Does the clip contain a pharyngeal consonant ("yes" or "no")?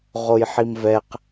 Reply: yes